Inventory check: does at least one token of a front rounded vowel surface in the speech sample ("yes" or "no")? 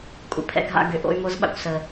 yes